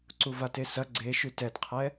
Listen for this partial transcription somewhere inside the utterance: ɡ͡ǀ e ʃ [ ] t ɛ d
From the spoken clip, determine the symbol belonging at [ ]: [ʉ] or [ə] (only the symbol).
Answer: ʉ